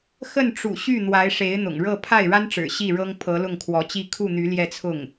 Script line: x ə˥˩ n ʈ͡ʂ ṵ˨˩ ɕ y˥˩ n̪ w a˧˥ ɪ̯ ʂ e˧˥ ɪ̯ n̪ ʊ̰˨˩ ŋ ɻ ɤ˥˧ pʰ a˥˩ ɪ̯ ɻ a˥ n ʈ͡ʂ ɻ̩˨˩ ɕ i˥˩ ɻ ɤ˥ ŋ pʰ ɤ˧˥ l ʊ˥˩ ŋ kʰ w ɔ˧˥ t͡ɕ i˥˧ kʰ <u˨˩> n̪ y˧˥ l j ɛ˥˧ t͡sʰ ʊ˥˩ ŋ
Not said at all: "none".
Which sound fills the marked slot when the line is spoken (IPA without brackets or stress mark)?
u˥˩